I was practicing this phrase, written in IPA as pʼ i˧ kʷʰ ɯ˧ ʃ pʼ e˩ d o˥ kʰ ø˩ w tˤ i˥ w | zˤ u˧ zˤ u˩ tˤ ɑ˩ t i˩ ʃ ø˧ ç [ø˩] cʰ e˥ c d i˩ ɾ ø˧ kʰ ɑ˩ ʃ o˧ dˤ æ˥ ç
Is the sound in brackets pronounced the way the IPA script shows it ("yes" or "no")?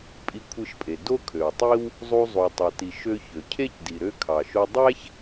yes